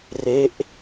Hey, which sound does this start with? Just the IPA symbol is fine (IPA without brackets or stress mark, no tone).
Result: r